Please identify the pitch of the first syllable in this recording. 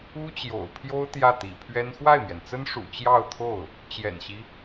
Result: high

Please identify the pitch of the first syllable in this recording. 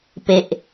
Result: low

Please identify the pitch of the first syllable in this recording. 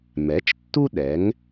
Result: rising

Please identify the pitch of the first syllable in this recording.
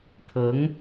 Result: rising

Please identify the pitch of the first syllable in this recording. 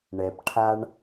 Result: low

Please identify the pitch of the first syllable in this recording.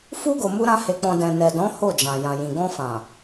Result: high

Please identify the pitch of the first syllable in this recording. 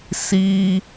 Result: high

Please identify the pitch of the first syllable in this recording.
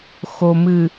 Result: low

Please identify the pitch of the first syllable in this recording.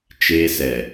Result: high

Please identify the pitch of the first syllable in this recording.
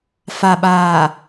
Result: low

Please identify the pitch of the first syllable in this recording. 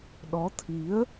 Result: rising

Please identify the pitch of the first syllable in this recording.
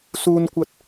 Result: high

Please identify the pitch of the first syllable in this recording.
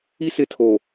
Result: high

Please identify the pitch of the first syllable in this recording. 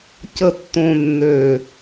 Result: low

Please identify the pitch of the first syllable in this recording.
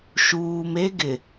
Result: low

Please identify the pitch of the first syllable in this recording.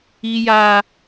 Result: high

